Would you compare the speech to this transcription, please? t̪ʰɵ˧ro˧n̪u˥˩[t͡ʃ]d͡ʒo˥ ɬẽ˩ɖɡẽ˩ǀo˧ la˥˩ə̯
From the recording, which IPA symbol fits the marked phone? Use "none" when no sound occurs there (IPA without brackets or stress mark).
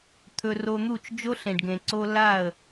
t͡ʃ